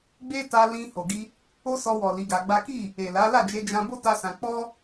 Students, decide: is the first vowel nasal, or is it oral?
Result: oral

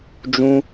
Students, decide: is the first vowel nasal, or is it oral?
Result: nasal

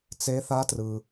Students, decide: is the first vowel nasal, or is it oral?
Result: oral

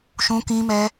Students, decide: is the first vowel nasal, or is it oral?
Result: nasal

